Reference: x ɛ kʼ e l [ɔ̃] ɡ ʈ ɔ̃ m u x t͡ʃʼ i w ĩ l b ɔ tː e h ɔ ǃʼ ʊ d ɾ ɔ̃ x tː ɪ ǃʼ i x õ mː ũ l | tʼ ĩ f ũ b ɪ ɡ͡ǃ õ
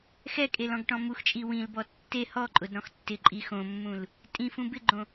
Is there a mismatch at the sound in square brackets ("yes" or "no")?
no